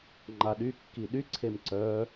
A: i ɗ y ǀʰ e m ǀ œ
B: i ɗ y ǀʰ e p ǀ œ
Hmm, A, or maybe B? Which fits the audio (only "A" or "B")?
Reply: A